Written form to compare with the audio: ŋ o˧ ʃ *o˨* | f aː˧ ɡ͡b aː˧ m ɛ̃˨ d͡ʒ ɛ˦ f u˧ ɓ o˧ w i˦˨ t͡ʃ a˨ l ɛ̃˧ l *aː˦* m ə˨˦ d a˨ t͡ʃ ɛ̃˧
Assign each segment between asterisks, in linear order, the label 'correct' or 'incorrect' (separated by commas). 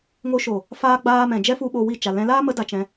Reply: correct, correct